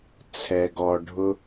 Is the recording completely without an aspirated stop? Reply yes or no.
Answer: no